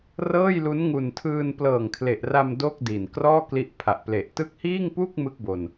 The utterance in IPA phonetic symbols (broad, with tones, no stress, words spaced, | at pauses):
rɤː˥˩jlu˦˥n ŋu˨˩ntʰɯː˧n plɤː˨˩ŋkʰle˨˩ʔra˧m do˥˩k̚di˨˩n krɔː˥˩ kli˦˥ʔpʰa˨˩ʔple˨˩ʔ tɯ˦˥k̚hiː˥˩ŋpuː˥˩k̚ mɯ˥˩k̚bo˧n